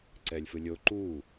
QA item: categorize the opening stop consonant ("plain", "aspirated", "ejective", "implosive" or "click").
click